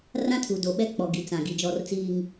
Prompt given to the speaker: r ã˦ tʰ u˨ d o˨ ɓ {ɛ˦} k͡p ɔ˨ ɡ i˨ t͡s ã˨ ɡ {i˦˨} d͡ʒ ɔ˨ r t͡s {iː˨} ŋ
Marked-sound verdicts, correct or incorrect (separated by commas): correct, incorrect, correct